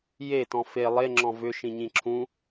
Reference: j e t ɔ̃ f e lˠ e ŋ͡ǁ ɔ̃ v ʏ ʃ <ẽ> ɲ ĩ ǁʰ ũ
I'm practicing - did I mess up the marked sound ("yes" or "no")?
yes